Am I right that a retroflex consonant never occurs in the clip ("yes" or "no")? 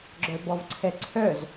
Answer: yes